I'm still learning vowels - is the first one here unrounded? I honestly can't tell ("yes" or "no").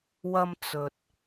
yes